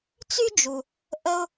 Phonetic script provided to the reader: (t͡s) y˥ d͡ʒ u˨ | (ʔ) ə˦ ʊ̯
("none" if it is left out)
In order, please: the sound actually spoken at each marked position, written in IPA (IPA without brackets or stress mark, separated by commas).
t͡s, ʔ